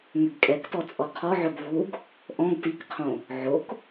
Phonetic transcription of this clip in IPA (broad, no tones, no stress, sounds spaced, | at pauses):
ŋ ʏ ɡ kʼ ɛ k t ɔ t͡sʼ ɔ qʰ ɔ ʕ ɵ ɡ v u ɡ | ʔ ɔ̃ ɡ t i k qʰ õ | ʕ o k